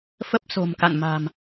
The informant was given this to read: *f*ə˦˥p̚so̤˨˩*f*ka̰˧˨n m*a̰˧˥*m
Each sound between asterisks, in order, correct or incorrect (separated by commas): correct, incorrect, incorrect